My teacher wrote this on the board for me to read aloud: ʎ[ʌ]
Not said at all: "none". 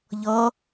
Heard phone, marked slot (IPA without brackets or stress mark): ʌ